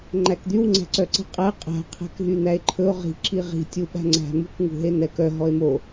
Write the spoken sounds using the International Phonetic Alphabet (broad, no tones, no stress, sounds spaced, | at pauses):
ŋ͡ǃ æ k d̪ y w ŋ͡ǀ æ̤ ǀ œ ǀ i̤ qʼ æ qʼ æ̤ qʰ æ̤ k ɦ y n̪ æ e̯ ǃʰ ɵ o̯ ʁ i̤ ǁ i ʁ i̤ tʲ u ɓ æ̤ ŋ͡ǀ æ̤ m ṳ k ŋ ṳ ɦ e n ɛ k œ ɦ ɔ e̯ m o